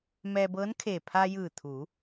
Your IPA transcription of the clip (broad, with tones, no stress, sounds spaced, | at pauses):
m ɛː˧ b ɤː˧˥ n kʰ e˧˩ pʰ a˧ j ɯː˧˩ t̪ʰ u˩˧